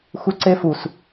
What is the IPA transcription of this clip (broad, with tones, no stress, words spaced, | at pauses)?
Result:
xu˧ǀe˦fu˨s